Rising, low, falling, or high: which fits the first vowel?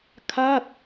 falling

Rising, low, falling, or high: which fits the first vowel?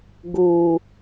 low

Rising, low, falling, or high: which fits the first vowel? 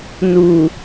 low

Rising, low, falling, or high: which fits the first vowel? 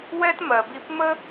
high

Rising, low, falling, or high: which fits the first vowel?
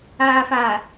low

